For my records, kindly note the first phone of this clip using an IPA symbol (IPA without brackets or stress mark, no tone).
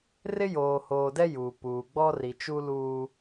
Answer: r